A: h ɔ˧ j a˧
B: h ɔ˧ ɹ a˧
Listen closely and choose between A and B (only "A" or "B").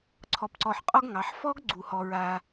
B